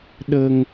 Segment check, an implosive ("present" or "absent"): present